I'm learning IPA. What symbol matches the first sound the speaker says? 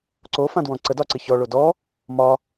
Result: ǀ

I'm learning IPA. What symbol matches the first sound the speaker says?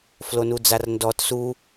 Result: f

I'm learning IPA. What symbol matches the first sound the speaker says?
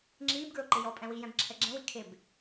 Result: ŋ͡ǁ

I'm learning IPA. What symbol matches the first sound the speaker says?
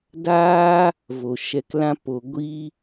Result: d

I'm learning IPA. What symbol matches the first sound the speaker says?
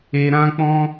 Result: e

